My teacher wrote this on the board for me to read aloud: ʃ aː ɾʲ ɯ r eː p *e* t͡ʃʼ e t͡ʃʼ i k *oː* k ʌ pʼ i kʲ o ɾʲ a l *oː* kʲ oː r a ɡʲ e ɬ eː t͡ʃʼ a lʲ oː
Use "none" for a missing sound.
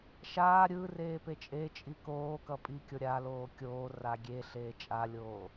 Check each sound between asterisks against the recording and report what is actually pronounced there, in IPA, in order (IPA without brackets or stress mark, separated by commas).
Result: e, oː, oː